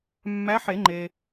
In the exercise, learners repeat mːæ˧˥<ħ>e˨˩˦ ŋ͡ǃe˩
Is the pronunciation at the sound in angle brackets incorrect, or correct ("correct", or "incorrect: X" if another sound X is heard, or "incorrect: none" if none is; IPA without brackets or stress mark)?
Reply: correct